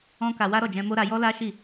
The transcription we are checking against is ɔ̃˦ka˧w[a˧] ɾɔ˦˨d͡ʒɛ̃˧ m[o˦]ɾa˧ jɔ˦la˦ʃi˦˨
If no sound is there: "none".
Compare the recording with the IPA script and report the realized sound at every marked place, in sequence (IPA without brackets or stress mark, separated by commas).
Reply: a˦, o˦